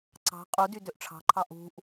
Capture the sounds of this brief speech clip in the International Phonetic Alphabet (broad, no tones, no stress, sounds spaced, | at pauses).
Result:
ǀ ɑ̤ qʼ u d y d ø ʔ ʈ͡ʂʰ ɑ̤ ǃʰ ɑ ʔ ṳ ʔ